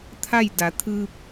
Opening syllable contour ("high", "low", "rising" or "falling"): falling